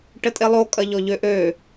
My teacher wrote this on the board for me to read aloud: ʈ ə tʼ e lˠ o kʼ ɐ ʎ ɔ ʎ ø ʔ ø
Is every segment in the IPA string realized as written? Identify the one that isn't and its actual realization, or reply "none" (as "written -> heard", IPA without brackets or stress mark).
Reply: none